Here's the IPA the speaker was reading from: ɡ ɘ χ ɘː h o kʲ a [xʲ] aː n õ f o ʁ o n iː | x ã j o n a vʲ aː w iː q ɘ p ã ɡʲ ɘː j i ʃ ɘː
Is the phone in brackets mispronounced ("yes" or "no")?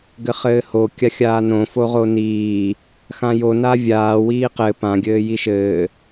no